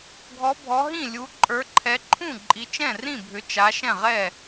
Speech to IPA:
ɡʱɔ˨˦ bʱɔ˨˦ɦĩ˥˩ lʲu˨˦ ǃʼə˞˨˦ǃʰɛ˨˦ǃʰũ˥˩ ǃʼi˨˦t͡ʃɛ̃˥˩rĩ˥˩ bʱʏ˨˦ t͡ʃa˨˦ ʃɛ̃˥˩ʁɛ˥˩

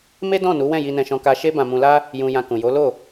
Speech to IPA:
me˦dɔ̃˦˨nu˨˦ wɛ̃˦˨ji˧nɛ̃˧ʃɔ̃˧ ka˧ʃe˦bã˧ mũ˧la˦ | jũ˧ jã˧kũ˨jo˨˦ lo˦˨

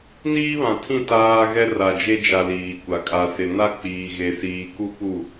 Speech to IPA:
niː˦βã˨tʰĩ˦˨ taː˦ ɣɛ˦ra˨d͡ʒe˦ d͡ʒa˨ liː˨kʷa˨ kʼa˨sɪ˨ na˦k͡piː˨ ɣe˨siː˨ku˦ pu˦˨

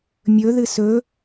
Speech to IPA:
mʲɵ ðɨsɵ

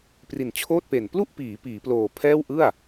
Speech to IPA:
pri˨˩nt͡ɕʰoː˥˩t̚pe˨˩n plu˥˩ʔpiː˩˦ piː˩˦ploː˨˩pʰɛː˥˩w ʔɯ˥˩a̯

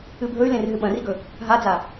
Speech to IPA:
ɨbʱɵy̯lẽr ɦɨɓɐ̃riɡɵ | ɦad͡za

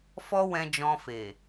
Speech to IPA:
fɔ˦wɛ̃˧d͡ʒɔ̃˧fe˨

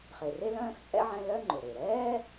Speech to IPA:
χe˨re˥ lœ̃ː˥xt͡sʼɛ̰˥ʕɛ̃˦ lœ˦ ŋ͡ǃʊ˩ɾe˩ɾɛː˥

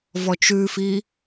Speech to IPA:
vɔt͡ʃʉfi

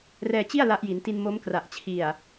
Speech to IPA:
rɛː˧t͡ɕi˥˩a̯ la˦˥ʔji˩˦nti˧n mo˦˥m kra˨˩ʔt͡ɕʰi˨˩a̯

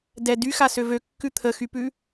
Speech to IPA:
dɛ dyxasø vøkːʉ t̪ʰəxypʉ

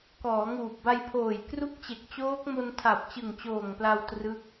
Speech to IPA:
kɔː˩˦ŋuː˨˩p̚ba˧jpʰoː˨˩j kru˦˥k̚t͡ɕe˨˩k̚t͡ɕoː˦˥k̚mo˧n tʰa˨˩p̚t͡ɕɯ˨˩ŋt͡ɕoː˨˩ŋpla˧w trɯ˦˥k̚

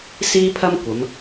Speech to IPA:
siː˥pʰɐ˥mkʷɐ˨˧m

